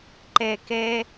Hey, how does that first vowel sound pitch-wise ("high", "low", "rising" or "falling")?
low